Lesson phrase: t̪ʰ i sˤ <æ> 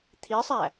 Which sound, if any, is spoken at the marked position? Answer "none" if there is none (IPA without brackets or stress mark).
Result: æ